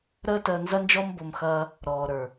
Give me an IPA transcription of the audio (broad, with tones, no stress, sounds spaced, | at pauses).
ɾ əː˦ t əː˧ n z ɐ˦ n d͡ʒ ɔ˦ m b o˧ m x ɐː˧ | ɾ ɔː˨ ɾ ə˞˨